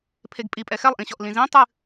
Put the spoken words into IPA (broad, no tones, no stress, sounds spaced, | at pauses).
pʰ e ɡ pʼ i pʼ ɛ x ɛ lˠ ʔ ĩ ɕ ɔ ʔ l ĩ z ĩ tˤ ɨ